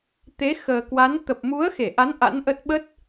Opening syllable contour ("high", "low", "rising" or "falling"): rising